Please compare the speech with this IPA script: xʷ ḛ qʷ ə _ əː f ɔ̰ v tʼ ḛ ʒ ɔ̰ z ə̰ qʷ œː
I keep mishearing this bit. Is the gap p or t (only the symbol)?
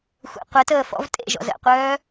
t